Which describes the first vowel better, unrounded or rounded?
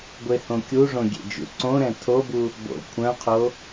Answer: unrounded